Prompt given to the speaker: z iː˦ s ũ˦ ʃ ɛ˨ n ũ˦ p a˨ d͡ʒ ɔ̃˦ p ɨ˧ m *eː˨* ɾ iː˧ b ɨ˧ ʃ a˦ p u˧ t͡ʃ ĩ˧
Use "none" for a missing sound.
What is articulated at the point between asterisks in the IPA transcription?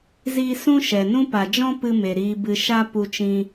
e˨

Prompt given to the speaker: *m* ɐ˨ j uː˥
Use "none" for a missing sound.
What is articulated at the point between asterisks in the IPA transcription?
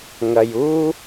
ŋ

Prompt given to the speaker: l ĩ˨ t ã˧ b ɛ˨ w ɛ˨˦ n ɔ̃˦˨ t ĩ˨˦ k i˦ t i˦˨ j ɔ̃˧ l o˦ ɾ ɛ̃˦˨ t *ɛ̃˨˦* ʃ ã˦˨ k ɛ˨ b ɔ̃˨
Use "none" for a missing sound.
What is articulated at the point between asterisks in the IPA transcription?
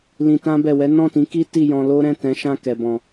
ɛ̃˨˦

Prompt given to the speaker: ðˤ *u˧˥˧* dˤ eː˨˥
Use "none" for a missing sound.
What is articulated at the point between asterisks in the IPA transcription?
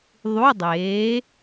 u˧˥˧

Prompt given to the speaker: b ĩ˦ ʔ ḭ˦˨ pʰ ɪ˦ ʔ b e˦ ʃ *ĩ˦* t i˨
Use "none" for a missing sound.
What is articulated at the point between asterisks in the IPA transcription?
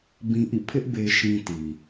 ĩ˦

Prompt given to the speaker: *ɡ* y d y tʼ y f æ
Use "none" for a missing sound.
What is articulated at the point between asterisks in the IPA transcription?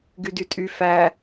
ɡ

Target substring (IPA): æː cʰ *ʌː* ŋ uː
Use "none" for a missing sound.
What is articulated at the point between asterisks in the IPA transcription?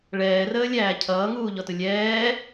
ʌː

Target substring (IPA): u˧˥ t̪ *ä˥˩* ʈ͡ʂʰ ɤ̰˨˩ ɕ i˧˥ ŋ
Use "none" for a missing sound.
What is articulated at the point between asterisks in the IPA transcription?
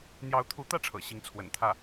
ä˥˩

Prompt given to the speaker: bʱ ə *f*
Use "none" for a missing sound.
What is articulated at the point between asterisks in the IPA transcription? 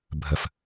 f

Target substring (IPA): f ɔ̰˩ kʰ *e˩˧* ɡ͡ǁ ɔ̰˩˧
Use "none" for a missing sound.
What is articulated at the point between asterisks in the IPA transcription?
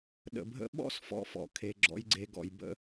e˩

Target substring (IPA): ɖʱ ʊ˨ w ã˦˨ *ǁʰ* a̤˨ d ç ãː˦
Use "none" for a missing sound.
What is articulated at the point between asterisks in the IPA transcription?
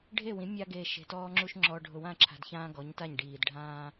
ǁʰ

